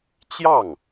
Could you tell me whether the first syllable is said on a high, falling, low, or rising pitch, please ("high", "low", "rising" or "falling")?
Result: falling